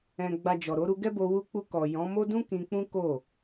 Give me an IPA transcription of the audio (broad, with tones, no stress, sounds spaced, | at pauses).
ɛ̃˨ ɡ͡b a˨ d͡ʒ ɔ˨ ɾ o˨˦ ɾ u˧ ɡ ɛ˦ b o˧ w u˧ k͡p u˧ k ɔ˨ j ɔ̃˨˦ m o˦ d ũ˦ k ĩ˧ k͡p ũ˦ k o˦˨